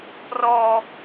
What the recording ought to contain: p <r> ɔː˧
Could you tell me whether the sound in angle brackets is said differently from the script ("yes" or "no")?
no